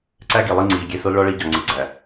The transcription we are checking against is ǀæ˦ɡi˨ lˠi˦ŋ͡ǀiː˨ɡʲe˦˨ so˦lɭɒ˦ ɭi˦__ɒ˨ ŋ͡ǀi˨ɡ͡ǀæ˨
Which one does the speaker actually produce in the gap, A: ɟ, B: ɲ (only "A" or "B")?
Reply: A